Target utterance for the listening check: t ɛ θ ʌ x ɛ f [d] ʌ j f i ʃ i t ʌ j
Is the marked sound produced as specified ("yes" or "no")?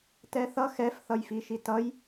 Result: no